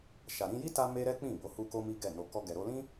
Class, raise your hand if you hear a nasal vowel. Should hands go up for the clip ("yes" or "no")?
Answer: yes